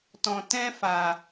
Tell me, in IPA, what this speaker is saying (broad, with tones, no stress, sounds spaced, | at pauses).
t ɔ̃˨ t ɛ̃˧ f a˨